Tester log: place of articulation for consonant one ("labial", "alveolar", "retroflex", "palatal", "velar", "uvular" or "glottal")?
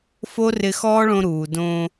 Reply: labial